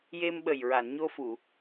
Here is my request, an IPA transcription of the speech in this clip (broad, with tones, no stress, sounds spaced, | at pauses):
j e˧ m ɓ ə˨˩ j ɹ a˨˩˨ n ɲ o˧ f u˨˩˨